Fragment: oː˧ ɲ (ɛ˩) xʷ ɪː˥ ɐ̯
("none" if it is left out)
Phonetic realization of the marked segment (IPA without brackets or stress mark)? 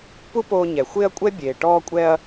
ɛ˩